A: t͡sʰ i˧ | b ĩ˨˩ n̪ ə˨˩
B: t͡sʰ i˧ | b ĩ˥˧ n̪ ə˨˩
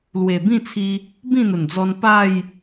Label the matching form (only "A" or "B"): B